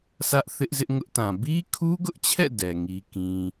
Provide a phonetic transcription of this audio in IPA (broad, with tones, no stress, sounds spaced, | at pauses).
s ä˦ ʔ θ ɪ˦ ʔ z ɪ˦ ʔ ŋ ʊ˦ ʔ t ã˨ b i˦ kʰ u˦ ɡ ʊ˦ ʔ t͡ɕʰ ɛ̰˦˨ d ɛ˨ ŋ i˦ k ĩ˦